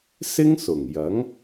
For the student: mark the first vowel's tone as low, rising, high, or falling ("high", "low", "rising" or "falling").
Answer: high